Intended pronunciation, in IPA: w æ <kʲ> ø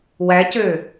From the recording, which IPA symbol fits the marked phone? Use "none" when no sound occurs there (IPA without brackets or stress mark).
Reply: c